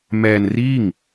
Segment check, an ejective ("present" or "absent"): absent